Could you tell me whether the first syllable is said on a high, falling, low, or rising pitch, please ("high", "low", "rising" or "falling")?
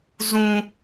low